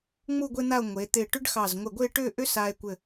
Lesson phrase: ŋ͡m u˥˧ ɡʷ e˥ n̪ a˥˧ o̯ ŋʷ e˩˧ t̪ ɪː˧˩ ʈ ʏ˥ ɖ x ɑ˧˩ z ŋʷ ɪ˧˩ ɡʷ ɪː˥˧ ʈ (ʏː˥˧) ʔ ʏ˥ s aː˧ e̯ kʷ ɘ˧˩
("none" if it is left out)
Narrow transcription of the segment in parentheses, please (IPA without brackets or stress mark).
ʏː˥˧